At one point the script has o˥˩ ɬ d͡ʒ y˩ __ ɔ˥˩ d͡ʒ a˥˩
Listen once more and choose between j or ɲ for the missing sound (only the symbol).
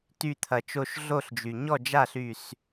ɲ